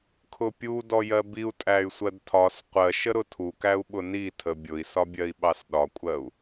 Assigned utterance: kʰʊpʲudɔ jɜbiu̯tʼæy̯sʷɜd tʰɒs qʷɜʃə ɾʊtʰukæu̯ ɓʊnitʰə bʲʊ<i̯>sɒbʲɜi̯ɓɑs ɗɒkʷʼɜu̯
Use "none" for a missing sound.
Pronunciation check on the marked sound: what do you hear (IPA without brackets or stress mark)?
i̯